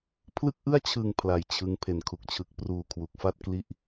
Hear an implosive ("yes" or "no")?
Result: no